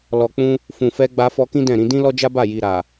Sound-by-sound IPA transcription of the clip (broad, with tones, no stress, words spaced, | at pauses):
lɔ˨k͡pũ˧ | fũ˨fɛ˧ ɡ͡ba˧fɔ˧kĩ˦ dɛ̃˦˨ɾĩ˧ dĩ˦lɔ˦d͡ʒa˦ba˦˨ ji˨ɾa˨